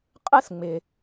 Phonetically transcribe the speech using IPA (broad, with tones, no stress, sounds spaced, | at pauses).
qʼ ɯ˥ s ŋ͡m ɪ˩